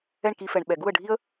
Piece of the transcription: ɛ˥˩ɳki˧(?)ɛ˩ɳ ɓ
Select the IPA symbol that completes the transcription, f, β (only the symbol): f